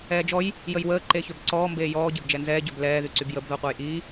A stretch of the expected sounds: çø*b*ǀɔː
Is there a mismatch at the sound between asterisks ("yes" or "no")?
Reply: no